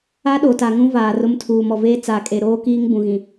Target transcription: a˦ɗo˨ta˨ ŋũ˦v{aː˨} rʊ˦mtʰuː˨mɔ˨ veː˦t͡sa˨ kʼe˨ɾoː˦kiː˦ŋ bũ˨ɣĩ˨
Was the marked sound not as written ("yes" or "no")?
no